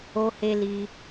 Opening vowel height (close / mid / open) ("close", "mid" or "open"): mid